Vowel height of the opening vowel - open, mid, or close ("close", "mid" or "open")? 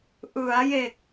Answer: close